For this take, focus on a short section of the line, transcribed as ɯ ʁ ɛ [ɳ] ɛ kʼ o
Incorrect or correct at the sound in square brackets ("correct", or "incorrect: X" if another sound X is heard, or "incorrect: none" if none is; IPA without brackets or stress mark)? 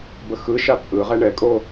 correct